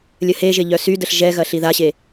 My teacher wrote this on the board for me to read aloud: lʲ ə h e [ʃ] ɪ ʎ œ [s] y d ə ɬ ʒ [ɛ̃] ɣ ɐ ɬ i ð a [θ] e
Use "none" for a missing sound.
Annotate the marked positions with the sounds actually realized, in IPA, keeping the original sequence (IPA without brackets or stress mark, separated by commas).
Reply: ʒ, s, ɛ, ɕ